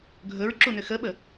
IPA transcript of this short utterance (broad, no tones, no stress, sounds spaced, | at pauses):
ɡʱ ɵ ɹ ǁ u n̪ ʏ x ə ɓ ə